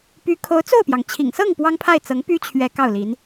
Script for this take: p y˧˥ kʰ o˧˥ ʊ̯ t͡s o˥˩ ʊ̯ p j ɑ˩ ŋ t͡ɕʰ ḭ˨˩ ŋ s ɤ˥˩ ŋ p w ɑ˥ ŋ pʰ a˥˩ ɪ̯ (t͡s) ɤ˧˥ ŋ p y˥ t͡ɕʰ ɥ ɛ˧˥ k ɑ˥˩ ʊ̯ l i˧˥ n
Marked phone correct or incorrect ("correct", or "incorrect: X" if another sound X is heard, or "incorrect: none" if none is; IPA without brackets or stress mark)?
correct